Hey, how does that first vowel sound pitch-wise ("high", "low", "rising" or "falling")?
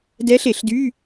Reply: rising